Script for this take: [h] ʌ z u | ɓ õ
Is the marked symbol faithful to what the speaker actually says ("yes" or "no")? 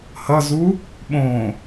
yes